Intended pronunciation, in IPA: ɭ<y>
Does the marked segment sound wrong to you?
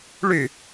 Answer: no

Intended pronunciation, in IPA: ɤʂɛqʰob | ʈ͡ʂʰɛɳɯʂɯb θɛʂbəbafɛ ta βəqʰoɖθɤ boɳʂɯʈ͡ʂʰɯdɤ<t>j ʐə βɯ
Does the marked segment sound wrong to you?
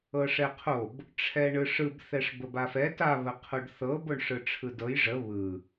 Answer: yes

